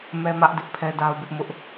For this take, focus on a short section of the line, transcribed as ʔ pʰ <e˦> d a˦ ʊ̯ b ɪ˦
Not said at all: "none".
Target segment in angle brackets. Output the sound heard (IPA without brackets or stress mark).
ɛ˦